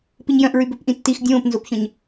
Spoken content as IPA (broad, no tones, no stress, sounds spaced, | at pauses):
p i ɲ j œ̃ ʔ ɹ y b ø p ʔ ĩ tː i x dʲ õː p n z o p ç œ̃ ɲ